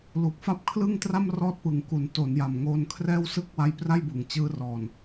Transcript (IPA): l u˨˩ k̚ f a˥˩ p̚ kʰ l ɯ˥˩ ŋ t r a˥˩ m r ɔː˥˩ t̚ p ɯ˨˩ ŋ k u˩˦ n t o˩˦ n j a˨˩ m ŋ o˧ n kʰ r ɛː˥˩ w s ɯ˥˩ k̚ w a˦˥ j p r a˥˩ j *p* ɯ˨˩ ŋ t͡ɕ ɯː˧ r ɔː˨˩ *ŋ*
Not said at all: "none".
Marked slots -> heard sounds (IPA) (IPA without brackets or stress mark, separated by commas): b, n